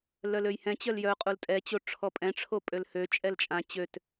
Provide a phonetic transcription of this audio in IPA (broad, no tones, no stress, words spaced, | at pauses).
lœløjhɛ̃t͡ɕœl jœqʼul tʼɛt͡ɕo ʈ͡ʂʰɔpʼɛ̃ʈ͡ʂʰo pʼølhøt͡ʃʼɛl t͡ʃʼã t͡ɕøt